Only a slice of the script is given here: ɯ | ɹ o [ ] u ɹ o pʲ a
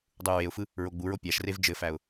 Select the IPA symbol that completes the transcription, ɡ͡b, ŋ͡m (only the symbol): ɡ͡b